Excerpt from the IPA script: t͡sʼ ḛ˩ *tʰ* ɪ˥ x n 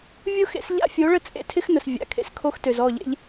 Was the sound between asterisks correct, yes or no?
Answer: yes